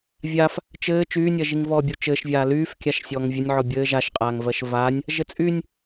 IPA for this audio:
vʲ a f | t͡ʃ ɘː t͡ʃ yː nʲ ɜ ʒ i ŋ v ɔː bʲ u t͡ʃ ɘː ʃ vʲ aː l yː f kʲ a ʃ sʲ ɔː ŋ vʲ ɘ nʲ ʕ ɔ bʲ ɘː ʒ a ʃ qʼ aː ŋ v ɜ ʃ v aː nʲ | ʒ ɘ t͡sʼ y nʲ

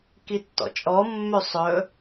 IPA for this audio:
k i tː ɔ̰ t͡ʃʼ ɔ mː ø sˤ ɵ

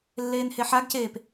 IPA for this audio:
lː eː n h e ħ a ɡ c eː p

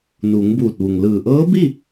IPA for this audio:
n uː˩˧ ŋ b uː˧˩ t̚ ʋ u˩ ŋ l ɯː˧˩ ʔ ɤː˧˥ b i˥˨

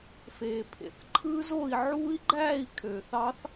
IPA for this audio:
f eː˨ pʰ ḛ˨ θ ǃʰ ɯ˦˥ z o˥˨ i̯ ʕ uː˦˥ i̯ ɡ͡ǃ æː˥˨ i̯ kʰ øː˨ θ ɑ˦˥ θ

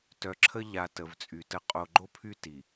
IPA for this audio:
t œ˨ ǁʰ ə˦ ʎ a˨ t ə˨ v t͡sʼ y˨ t ə˦ qʼ o˨ ɡ͡ǃ o˦ pʰ y˦ t i˨

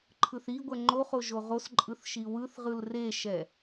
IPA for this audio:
ǃʰ ɯ θ i ɡʷ ɛ ŋ͡ǃ o χ o ʒ o ʁ o s ǃʼ ɯ θ ʃ i w ɯ θ ʁ ɯ l r e ʃ ɛ

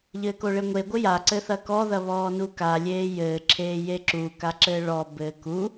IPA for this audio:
ʎ ɘː k o ɭ e ŋʷ e ɡʷ ɘ j a ǀ ɘ θ ɐ k ɔ ð ɐ β ɔː n u k a lʲ eː j ɘː ǁʰ eː j e ǁ u k a ǁ ɘː ɭ ɔ b ɘː k u

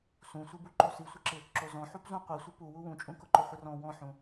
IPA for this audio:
s ũ sʷ i b u ǃ o s i sʷ ɪ ǁ ɪ | ǁ o z ɔ̃ ħ u p z ũ qʷ i sʷ i p u w u w ũ t͡ʃʼ ũ k ʊ ǃ ʊ χʷ ɪ r ɔ̃ w ɔ̃ ħ ũ

